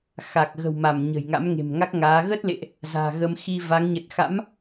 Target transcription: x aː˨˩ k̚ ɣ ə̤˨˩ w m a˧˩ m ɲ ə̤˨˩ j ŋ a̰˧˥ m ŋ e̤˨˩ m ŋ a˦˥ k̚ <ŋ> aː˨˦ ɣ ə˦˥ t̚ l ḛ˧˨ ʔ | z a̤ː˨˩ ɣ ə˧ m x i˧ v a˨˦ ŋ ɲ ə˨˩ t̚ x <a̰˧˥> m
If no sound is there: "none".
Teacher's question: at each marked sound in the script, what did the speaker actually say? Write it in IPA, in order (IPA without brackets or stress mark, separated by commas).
ŋ, a̰˧˥